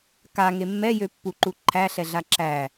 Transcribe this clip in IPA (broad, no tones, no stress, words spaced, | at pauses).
kaŋe mːɛjøpːuǃu ǃʰæɬɛɮa ǁæ